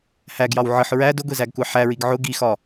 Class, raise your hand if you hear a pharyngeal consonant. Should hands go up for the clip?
yes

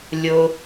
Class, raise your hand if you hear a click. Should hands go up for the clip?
no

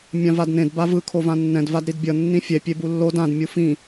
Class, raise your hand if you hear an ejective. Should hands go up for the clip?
no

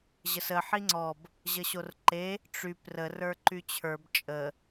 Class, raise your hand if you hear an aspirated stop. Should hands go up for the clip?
yes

